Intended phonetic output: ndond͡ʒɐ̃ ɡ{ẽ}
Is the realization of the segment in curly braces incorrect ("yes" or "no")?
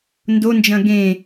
no